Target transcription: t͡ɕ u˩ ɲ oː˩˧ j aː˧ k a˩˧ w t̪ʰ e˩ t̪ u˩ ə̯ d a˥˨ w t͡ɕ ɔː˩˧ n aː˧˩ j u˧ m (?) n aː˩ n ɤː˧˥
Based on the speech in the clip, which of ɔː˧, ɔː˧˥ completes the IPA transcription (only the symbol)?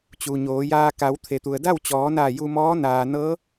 ɔː˧˥